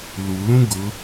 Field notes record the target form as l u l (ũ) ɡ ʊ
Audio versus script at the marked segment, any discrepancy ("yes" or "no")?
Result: no